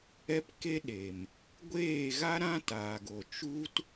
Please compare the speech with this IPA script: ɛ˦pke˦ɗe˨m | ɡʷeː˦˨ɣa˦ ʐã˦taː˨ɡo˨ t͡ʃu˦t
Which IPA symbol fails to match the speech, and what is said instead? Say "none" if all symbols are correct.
ʐ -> ɾ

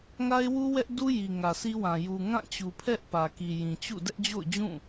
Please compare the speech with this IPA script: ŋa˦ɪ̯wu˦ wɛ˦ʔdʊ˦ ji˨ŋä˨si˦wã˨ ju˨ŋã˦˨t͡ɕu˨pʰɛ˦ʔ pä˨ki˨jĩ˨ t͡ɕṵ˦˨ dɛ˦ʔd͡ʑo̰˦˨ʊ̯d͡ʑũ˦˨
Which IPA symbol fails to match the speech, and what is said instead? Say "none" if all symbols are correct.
ʊ˦ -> u˦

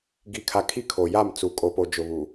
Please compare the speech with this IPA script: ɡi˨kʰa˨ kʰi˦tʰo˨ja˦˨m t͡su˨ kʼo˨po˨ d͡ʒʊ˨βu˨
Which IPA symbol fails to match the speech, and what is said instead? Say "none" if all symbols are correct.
tʰ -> kʰ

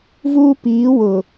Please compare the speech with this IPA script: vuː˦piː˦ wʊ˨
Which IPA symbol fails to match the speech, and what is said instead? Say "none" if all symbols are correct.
iː˦ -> iː˨˦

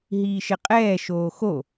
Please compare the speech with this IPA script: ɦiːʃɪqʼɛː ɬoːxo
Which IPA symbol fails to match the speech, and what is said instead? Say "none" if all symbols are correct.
ɬ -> ʃ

